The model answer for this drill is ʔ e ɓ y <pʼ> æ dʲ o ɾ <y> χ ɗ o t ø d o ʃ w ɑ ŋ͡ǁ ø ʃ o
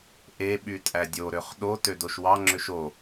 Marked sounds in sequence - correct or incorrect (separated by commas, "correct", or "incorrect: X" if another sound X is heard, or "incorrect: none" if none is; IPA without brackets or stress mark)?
incorrect: tʼ, incorrect: ø